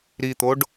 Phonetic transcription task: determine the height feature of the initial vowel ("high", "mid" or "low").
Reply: high